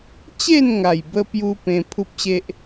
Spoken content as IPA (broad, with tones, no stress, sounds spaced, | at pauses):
t͡ɕ e˥˧ n ŋ a˨˩ j b ə˧ p j u˧ p ẽ˧ pʰ u˦ p̚ ɕ e˦ ʔ